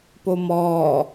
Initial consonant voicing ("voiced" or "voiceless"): voiceless